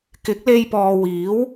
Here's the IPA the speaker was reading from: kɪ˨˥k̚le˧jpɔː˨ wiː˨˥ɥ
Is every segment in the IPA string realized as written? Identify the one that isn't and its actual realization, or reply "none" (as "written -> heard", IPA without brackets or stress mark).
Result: ɥ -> w